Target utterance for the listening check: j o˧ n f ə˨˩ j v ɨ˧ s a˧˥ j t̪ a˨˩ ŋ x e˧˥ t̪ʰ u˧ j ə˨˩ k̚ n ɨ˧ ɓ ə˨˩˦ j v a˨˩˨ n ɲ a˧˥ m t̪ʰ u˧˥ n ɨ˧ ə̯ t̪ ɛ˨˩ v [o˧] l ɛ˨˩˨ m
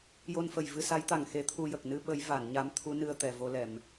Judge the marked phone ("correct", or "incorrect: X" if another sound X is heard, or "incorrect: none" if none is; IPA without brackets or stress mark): correct